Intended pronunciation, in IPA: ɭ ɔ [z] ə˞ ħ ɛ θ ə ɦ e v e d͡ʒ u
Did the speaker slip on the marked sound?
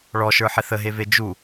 yes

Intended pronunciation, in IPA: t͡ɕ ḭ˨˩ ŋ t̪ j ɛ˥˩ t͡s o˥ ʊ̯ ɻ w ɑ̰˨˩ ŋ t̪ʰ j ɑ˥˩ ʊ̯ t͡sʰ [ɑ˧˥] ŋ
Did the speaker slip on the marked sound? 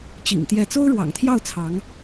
no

